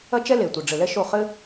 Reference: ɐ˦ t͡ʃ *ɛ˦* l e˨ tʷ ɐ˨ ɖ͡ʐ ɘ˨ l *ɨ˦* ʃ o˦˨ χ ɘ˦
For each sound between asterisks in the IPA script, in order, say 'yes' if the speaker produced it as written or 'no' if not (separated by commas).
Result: yes, no